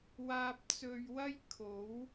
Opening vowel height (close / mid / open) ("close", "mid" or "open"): open